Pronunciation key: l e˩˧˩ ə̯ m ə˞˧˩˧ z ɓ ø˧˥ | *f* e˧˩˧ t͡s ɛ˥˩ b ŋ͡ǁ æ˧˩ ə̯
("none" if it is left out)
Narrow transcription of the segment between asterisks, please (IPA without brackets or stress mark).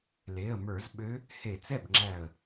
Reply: h